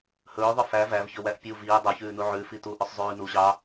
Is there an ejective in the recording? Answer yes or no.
no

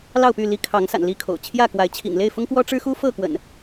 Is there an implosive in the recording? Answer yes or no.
no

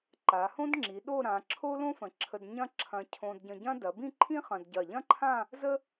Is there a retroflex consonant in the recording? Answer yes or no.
no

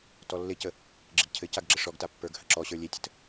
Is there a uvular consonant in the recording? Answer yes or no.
no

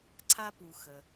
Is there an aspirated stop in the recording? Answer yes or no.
yes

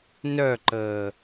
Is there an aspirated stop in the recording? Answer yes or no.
no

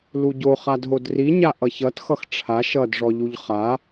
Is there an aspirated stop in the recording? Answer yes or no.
yes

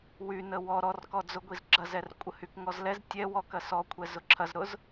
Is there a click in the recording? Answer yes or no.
yes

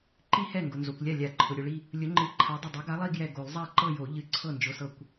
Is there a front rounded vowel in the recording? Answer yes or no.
no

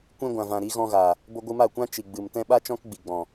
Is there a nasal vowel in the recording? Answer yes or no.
yes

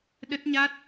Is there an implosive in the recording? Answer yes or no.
yes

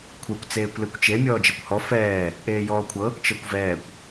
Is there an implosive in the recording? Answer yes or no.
no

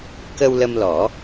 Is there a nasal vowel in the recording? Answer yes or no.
no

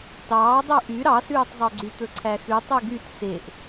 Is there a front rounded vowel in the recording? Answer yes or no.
yes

